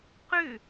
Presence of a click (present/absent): absent